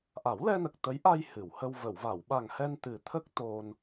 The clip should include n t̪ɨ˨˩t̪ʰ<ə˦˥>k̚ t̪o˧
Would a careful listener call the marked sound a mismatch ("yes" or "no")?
no